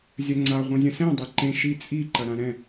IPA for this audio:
zʲ ɐ ŋ͡ǀ a ʁʷ ɐ̃ zʲ ɐ̃ s ɛ̃ dˤ e ǃ ẽ ʃ i t͡sʼ i ǃ ɐ ɾ ã ɾ ɛ̃

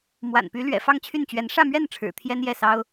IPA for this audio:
m w a̰˨˩ n p y˧˥ l ɥ ɛ̰˨˩ f ɑ˥˧ ŋ t͡ɕʰ y˥˩ n t͡ɕ ɥ ɛ˧˥ n ʂ ä˥˧ m ɥ ɛ˥˩ n ʈ͡ʂʰ ɻ̩˨˩ t̪ʰ j ɛ˥ n j ɛ˥˩ s ɑ˥ ʊ̯

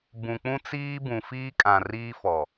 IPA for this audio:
b ũ˨ k͡p ũ˦ t͡s iː˦ b ũ˨ f iː˦ kʼ ã˨ r iː˦ f ɔ˨

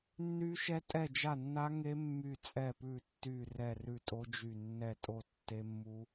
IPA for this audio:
nː y˦˥ ʃ ɛ˦˥ tʼ ɛ˦˨ d͡ʒ a˦˨ nː a˦˥ ŋ e˦˥ mː y˦˨ t͡sʼ ɛ˦˨ p ʉ˦˨ tː y˦˨ r ɛ˦˨ r ʉ˦˨ tʼ o˦˥ d͡ʒ y˦˨ nː ɛ˦˨ tʼ o˦˨ tː e˦˥ mː u˦˥

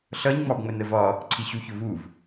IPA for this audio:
ɬ ʌ ɲ ŋ͡m ɑ b ŋ͡m ə n ə v ɒ | ǀʰ i ɕ u ç ʊ v u v

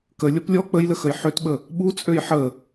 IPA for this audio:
k ə lʲ ɔ p lʲ ɔ k͡p ə j l ə x ə j ħ ø t ɓ ə | ɓ u t͡sʼ ø j ħ ə

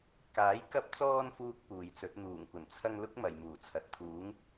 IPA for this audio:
k aː˨˥ j k ɐ˧ p̚ t͡s ɔː˧ n f uː˥ k̚ p uː˨ j t͡s ɵ˨˥ t̚ n̪ uː˨˩ ŋ kʷ ɐ˨˩ n t͡sʰ ɐ˧ ŋ l ʊ˥ k̚ m ɐ˨ j m uː˨˩ t͡sʰ ɐ˨ t̚ t̪ʰ uː˨˥ ŋ

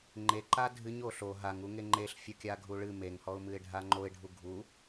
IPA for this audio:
ŋ͡ǃ e ǃ a dʱ ɨ ɲ o ɬ o ɦ a ŋ u ŋ e ŋ͡ǃ e ɬ fʲ o kʲ a ɡʱ u ɭ ɨ m e ŋ h ɔ ʊ̯ m ɨ ɪ̯ ɖʱ a ŋ͡ǃ o ɪ̯ ɖʱ u ɡʱ u

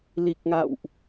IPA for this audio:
l i˨˩ k̚ ŋ a̰˧˨ w ʔ

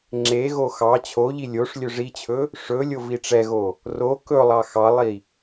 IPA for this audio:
ŋ͡ǁ e ɣ o x ɑ t͡ɕʰ o ʎ i lʲ o ʂ lʲ ɵ ʐ i t͡ɕʰ ɵ | ʂ ɵ lʲ o v i ʈ͡ʂ ɛ ɣ o | r o k ɵ lˠ ɑ x ɑ lˠ i

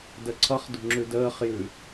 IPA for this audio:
d ə ǀʰ ʌ χ d ṳ ŋ͡ǁ ʉ d əː χ j ʉ

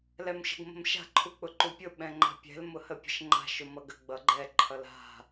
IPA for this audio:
l ɛ m ʃ ə̤ ɡ m ə̤ m ʃ a̤ ǃʰ u k͡p ʊ ǃ u pʲ ʊ ɓ ɛ̃ ŋ͡ǃ a̤ pʲ ɛ̤ l m ʊ h ə pʲ ə̤ ʃ ŋ͡ǃ a̤ ʃ ʊ m ʌ ɡ ə ɡ͡b ʌ ɡ͡ǃ ɛ ǃʰ ʌ l a̤

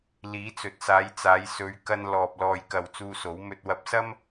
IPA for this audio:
l iː˨˥ t͡s ɵ˨ t̚ s aː˨˧ j t͡s aː˨˧ j s ɵ˨˧ ɥ k ɐ˧ n l ɔː˨ p̚ l ɔː˨ j k ɐ˨ w t͡s uː˧ s o˨˥ w m ɵ˧ t̚ w ɐ˧ p̚ s ɐ˥ m

